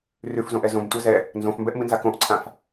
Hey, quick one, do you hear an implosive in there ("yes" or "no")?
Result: no